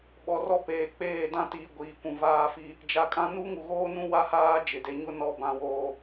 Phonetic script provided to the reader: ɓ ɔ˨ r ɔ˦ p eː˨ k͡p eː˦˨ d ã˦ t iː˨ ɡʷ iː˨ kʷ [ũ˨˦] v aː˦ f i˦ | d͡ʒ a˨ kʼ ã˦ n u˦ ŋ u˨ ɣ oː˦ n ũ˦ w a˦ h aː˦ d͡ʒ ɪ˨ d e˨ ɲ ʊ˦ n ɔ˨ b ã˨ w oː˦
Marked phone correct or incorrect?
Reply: incorrect